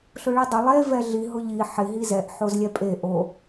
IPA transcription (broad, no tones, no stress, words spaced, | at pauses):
ɬʊɭidˤʊ lˠe vɛɮi ɦʊʎi ħɪ ɦizɛʔ ħozlʲɛpʼe ʔo